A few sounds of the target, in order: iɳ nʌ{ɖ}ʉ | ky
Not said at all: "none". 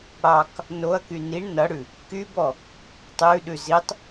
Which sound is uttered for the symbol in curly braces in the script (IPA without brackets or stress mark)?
ɽ